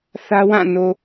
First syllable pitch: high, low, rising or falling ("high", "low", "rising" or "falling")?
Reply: high